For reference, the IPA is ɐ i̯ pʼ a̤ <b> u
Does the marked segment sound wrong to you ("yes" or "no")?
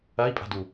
yes